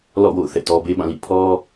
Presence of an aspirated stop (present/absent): present